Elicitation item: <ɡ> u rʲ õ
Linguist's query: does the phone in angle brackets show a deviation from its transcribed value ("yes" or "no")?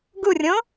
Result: no